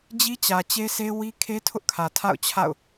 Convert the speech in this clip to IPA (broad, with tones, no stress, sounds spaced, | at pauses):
d͡ʑ i˦ t͡ɕ ä˨ t͡ɕ e˦ s e˦ w i˦ kʰ e˦ tʰ ʊ˦ ʔ kʰ ä˨ tʰ a̰˦˨ ʊ̯ t͡ɕʰ a̰˦˨ ʊ̯